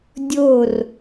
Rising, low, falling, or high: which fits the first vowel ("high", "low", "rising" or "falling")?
falling